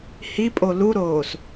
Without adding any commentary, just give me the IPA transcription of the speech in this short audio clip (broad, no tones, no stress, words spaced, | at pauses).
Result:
hipʼo luɾoːs